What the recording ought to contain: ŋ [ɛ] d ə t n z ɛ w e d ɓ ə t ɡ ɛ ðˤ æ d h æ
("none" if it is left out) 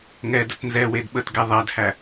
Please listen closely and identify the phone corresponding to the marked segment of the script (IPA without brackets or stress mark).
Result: ɛ